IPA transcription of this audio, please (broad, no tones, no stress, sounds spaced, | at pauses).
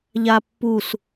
ʎ a pː u s